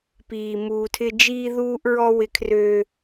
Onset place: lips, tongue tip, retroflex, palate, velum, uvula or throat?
lips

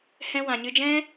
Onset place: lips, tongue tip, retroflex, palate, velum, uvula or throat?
throat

